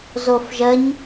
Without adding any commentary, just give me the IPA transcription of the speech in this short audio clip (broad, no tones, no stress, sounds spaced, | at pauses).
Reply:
z o f ʒ ə ɲ